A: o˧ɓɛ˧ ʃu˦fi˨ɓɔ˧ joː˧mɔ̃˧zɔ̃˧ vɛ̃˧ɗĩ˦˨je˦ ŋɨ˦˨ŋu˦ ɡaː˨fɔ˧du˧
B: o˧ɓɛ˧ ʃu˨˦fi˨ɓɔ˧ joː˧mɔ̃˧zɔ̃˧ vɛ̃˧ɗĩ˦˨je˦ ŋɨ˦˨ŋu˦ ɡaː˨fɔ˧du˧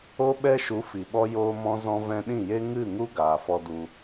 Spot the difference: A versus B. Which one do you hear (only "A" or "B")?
B